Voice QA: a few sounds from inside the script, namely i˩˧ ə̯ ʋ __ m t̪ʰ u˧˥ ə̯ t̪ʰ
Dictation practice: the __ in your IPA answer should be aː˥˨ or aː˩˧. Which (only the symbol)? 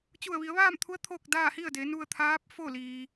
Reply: aː˥˨